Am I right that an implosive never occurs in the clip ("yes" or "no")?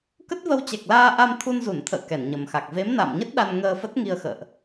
no